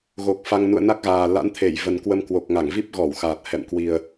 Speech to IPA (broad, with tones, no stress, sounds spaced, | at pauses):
ɣ o˨˩ k̚ f a˧ ŋ n ṵ˧˨ ə̯ n a˦˥ k̚ ɣ aː˨˩ l a̰˧˥ n t̪ʰ e˧˩ j v ə˨˩ n k w ə˧ m k w o˨˩ k̚ ŋ a˧˩ ŋ v i˦˥ p̚ ɣ ɔ˧˩ w x aː˨˩ t̚ h ɛ̰˧˨ m k w i˨˩ ə̯